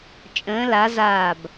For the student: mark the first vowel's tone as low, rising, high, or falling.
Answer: rising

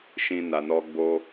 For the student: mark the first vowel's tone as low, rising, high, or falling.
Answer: high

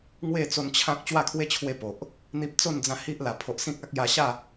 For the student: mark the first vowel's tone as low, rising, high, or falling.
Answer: falling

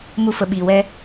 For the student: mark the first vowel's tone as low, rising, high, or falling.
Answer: high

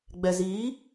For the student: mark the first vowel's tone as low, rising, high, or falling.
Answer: low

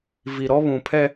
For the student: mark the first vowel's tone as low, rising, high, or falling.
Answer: low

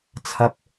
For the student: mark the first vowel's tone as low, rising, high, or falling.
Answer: high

